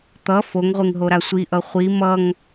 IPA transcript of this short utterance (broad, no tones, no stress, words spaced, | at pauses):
t̪ʌ foŋʁʷeŋɦoɾa sʷiʔʌ χʷi mʌŋ